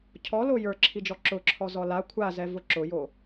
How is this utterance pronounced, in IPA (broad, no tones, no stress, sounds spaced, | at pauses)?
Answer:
cʰ ɔ l o j ə˞ ǁʰ i d͡ʒ ɔ ǁ ʊ ǁʰ ɔ z ɔ l a kʷʰ a z ɛ v ʊ ǁ ʊ j o